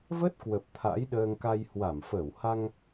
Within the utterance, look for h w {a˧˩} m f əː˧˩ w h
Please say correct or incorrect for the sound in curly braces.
correct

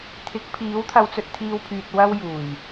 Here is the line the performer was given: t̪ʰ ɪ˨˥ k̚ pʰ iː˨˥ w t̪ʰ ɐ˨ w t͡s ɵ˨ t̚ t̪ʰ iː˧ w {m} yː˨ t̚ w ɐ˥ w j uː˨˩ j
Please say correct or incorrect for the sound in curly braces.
incorrect: pʰ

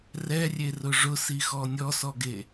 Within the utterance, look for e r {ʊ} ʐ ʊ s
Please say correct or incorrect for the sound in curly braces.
correct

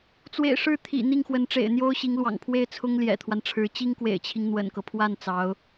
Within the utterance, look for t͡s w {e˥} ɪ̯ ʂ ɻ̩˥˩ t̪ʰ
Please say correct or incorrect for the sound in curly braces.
incorrect: ḛ˨˩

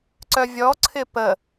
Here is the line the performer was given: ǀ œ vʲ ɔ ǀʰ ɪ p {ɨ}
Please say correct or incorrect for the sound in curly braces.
incorrect: ə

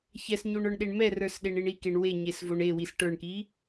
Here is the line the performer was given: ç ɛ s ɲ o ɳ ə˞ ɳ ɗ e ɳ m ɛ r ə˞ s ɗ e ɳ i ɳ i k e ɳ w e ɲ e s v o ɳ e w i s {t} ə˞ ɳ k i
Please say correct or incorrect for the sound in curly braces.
incorrect: ʈ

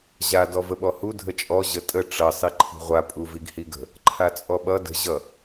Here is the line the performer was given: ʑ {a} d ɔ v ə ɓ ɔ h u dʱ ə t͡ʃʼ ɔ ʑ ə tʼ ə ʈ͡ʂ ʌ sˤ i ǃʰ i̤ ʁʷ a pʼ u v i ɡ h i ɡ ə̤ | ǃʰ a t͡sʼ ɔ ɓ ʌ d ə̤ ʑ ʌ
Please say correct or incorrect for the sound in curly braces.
correct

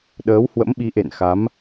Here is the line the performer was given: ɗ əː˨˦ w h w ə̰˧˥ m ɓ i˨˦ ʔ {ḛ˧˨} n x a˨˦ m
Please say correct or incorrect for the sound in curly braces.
correct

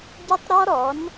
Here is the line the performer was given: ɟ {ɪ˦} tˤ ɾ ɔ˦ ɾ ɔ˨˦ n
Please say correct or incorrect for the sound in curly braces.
correct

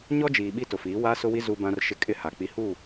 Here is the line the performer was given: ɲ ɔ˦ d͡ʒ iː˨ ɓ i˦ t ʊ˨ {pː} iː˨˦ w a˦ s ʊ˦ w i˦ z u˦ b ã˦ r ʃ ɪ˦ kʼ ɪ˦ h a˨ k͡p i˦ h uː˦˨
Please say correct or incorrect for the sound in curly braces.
incorrect: f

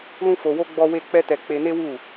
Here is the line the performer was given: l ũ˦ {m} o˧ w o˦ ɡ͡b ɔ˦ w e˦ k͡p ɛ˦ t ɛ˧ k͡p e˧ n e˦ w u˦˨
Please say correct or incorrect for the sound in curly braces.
incorrect: f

